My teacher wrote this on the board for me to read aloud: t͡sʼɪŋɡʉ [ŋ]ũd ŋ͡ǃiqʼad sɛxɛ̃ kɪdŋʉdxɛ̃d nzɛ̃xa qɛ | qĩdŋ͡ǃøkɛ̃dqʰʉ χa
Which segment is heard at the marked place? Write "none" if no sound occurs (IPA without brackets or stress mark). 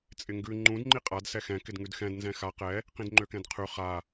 ŋ͡ǃ